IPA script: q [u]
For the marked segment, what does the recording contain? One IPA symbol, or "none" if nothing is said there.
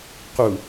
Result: u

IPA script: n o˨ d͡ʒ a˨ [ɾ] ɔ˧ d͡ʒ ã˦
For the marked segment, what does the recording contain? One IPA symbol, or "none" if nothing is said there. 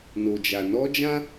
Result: n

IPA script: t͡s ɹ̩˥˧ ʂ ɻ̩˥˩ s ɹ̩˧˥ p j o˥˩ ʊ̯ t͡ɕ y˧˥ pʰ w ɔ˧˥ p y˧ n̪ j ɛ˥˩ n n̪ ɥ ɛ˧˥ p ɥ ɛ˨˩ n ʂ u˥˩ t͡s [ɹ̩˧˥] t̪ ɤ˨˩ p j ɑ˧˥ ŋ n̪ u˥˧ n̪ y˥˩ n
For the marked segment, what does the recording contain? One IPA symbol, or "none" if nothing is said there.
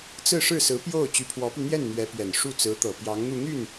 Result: ɹ̩˧˥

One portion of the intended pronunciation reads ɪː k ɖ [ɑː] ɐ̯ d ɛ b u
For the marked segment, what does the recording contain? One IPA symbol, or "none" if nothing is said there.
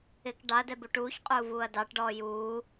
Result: ɑ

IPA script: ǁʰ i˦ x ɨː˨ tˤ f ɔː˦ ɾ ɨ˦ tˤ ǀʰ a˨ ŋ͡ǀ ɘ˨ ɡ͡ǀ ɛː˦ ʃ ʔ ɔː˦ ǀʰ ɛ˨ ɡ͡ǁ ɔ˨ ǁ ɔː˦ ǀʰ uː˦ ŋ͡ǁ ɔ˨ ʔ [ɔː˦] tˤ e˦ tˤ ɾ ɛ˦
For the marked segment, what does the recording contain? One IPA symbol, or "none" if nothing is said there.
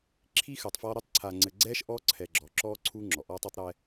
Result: ɔː˦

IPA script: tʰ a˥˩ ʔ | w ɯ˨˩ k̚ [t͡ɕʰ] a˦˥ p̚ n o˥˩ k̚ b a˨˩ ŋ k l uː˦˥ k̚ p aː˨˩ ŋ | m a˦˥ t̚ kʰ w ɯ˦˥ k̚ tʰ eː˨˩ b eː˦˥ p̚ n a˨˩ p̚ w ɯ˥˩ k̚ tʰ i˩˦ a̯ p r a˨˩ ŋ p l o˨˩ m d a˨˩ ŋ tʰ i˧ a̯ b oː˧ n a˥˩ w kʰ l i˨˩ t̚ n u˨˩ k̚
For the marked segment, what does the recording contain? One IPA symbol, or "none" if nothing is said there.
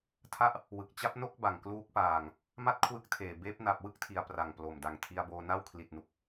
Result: t͡ɕ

